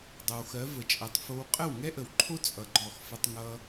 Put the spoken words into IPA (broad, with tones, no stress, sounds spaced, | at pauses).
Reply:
dˤ ʌ˨ w x ɜ˨˦ v ə˨ t͡ʃʼ ɛ˨ tˤ f o˧ w qʼ ə˦˨ w ŋ ɛ˦ ʔ ə˨ w ǃʰ o˦ t͡sʼ ʌ˧ ɡ͡ǃ ɔ˦˨ x f ə˦ tˤ ŋ ʌ˧